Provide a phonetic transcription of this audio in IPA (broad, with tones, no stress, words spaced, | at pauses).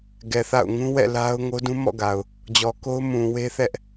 ɡɛ˨θa̰˦˨ʊ̯ ŋũ˦wɛ̰˦˨ la˦ʊ̯ ŋo˦dũ˦ mɔ̰˦˨ɡa˨ʊ̯ | d͡ʑɔ˨ko˦ʊ̯ mũ˨we˦θɛ˦ʔ